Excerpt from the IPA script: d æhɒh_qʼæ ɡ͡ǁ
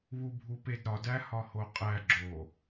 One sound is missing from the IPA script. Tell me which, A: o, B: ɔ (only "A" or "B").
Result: A